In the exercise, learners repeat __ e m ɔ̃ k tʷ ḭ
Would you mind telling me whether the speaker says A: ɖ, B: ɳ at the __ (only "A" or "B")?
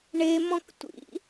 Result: B